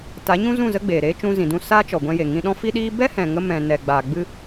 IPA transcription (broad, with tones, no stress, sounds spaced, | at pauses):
t a˨˦ ɲ ũ˦ z ũ˦˨ z ə˦ ɡ͡b eː˨ ɾ eː˦ t͡ʃ ũ˧ z ĩ˨ d ũ˦˨ s aː˦ t͡ʃ ɔ˨ ɡʷ ɛ̃˧ j e˨ ŋ ĩ˧ ɗ ɔ̃˦ f i˦ ɗ iː˦ b ɛ˦ h ɛ̃˨ ŋ ə˧ m ɛ̃˨ n ɛ˨ ɡ͡b aː˨ ɡ͡b ɨ˧